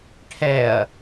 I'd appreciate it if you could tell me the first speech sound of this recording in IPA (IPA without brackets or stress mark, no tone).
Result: ʈʰ